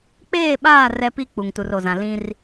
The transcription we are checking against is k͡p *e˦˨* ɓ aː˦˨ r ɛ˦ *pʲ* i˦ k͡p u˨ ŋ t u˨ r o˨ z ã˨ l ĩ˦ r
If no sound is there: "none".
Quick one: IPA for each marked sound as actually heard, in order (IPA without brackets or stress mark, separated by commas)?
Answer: eː˦˨, p